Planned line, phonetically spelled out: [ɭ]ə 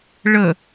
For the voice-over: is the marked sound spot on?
yes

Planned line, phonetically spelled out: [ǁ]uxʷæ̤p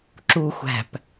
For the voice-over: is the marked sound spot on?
yes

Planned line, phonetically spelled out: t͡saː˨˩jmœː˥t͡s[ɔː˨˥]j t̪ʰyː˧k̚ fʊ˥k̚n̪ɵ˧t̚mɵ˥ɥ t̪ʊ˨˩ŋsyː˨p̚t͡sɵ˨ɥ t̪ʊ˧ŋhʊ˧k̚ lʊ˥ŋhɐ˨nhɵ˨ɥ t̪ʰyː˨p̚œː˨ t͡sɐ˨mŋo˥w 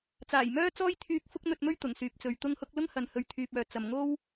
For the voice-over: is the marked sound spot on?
no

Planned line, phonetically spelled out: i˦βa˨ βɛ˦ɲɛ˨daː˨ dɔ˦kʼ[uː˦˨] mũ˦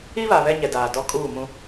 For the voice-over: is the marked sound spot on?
yes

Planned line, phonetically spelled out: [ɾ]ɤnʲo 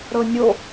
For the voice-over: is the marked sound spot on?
yes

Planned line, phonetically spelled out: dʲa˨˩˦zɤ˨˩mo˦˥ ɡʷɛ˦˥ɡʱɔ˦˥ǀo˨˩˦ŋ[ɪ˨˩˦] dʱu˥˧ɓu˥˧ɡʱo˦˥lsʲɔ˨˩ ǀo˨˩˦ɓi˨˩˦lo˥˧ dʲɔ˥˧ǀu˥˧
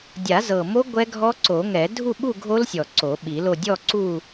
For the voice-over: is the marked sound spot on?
no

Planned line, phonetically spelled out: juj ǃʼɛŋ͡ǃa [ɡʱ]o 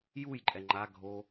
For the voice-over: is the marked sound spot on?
yes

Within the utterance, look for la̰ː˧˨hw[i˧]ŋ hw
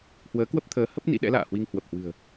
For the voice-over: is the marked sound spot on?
yes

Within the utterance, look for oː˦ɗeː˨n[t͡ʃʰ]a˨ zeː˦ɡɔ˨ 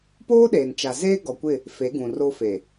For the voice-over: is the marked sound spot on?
no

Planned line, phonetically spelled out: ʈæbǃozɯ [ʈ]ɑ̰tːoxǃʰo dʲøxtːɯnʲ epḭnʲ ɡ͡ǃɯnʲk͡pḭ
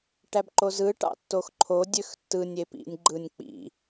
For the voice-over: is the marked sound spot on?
yes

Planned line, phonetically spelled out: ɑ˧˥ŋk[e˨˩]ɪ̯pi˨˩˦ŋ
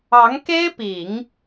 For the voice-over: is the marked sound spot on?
no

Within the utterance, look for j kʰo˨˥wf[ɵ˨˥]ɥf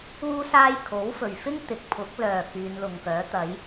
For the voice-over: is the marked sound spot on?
no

